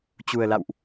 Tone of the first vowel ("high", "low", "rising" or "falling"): low